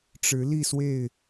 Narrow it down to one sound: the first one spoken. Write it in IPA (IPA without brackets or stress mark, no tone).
ʈ͡ʂ